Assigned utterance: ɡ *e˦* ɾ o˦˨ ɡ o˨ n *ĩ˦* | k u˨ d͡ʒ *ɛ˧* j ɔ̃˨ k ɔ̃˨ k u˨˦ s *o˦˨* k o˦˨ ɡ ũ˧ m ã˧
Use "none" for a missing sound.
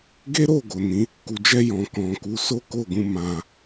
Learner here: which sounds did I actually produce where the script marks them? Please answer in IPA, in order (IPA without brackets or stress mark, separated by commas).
e˦, ĩ˨˦, ɛ˧, o˦